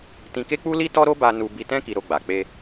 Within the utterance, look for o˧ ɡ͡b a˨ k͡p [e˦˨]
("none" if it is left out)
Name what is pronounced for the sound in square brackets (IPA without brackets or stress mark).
e˧